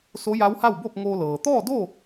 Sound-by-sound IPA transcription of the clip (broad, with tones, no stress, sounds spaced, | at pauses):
s o˧˥ j a˧˥ w h a˥˨ w b o˥˨ p̚ ŋ oː˧ l ɤː˩ t̪ ɔː˥˨ d o˥˨